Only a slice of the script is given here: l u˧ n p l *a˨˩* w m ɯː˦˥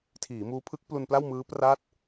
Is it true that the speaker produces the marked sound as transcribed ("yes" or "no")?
no